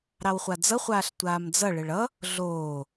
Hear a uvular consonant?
yes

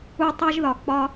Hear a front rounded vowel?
no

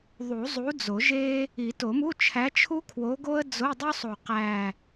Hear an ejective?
no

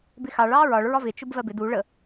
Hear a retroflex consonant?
yes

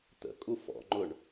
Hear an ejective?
yes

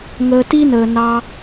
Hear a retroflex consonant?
no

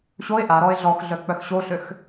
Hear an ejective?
no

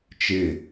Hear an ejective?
no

